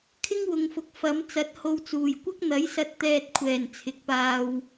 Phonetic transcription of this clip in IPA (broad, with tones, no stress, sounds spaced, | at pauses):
kʰ ɪ˥ ŋ w ʊ˨ ŋ f ʊ˨ k̚ f ɐ˨˥ m t͡s ɐ˨˥ t̚ h o˧ w t͡s uː˨˩ j kʷ ɐ˥ k̚ n̪ ɐ˨˥ j s ɐ˧ t̚ t̪ ɛː˧ t̚ kʷʰ ɛː˨˩ n t͡sʰ ɪ˨ k̚ p aː˧ w